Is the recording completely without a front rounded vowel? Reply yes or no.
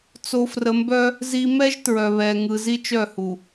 no